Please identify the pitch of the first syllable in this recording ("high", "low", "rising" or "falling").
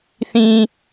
low